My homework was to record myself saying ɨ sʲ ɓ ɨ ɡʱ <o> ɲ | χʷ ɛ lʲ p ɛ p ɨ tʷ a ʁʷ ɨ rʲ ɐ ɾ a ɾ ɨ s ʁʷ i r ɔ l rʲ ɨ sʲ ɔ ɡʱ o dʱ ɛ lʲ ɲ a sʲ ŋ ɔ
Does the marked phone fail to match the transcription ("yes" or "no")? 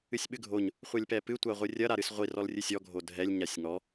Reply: no